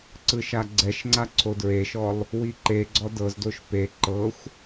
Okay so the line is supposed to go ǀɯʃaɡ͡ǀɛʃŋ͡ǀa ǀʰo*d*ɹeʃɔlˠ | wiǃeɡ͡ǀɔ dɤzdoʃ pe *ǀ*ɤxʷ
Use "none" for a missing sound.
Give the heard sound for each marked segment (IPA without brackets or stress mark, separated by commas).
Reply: d, ǃ